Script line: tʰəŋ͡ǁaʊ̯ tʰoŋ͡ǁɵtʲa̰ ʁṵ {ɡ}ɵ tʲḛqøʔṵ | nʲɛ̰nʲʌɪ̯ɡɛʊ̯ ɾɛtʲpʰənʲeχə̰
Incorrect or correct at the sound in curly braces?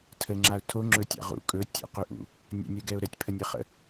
incorrect: kʼ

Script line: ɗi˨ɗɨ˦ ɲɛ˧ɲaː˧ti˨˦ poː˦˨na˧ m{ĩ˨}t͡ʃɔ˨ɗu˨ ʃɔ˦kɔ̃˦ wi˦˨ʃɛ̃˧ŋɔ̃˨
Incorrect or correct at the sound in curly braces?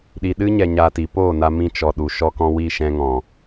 incorrect: ĩ˧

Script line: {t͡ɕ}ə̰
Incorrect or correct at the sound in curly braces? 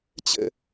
correct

